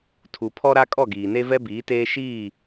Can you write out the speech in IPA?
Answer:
tʰu˨pʰɔ˦ɾa˦ kʼɔ˦˨ɡiː˨ne˦vɛ˦ biː˨˦teː˦ ʃiː˦˨

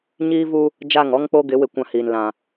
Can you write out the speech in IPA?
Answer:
ɲiː˦vu˦ | d͡ʒa˦˨ŋɔ˦ŋk͡po˦ɡɪ˨˦ wɪ˦˨kʷã˦hiː˨n lã˨

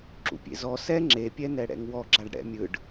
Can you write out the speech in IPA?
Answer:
ǁṵpʲḛzɔ sɛ ŋ͡ǁe pʲɛnɛɽɛ̰ŋwɔ ɡ͡ǁaɖɽɛ̰mʲɯɖ

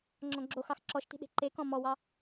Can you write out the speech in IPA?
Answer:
ŋ͡ǁɔ̃ɡ͡ǁoxɑx ǁɔʃti̤ ɗe̤ǃekɔ̃ mɔwɑ

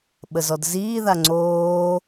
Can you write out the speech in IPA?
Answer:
ɓəzɔdziː ðaŋ͡ǀoː

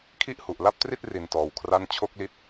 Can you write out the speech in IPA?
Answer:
kʰi˥˩ʔhu˨˩ʔ la˥˩p̚tri˥˩t̚ ri˧ntɔː˧wkʰra˥˩n t͡ɕʰo˥˩k̚li˦˥t̚

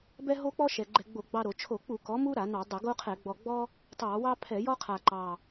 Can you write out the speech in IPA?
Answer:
bɛ˦ ɦo˦k͡pɔ˦ ʃɛ˨˩ɡ͡ǃɛ˧˩˧ɡ͡bo˧˩˧ ɡ͡bɑ˦ɾo˧˩˧ t͡ʃʰo˧˩˧k͡pu˧˩˧ kɔ˩˥mu˦ ɾa˧˩˧nɑ˧˩˧dˤə˧˩˧ ɡo˦qʰɛ˧˩˧ ɡ͡bɔ˨˩ɡ͡bɔ˦ | tˤɑ˧˩˧wɑ˦ pʰɛ˧˩˧jɔ˦qʰa˨˩ ǃɑ˨˩

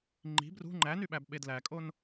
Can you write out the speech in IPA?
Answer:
ŋ͡ǃi̤ brṳ ŋ͡ǃænyɓæbɓed lækʼon

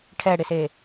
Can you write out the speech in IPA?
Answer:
ʈʰɛɽɪse

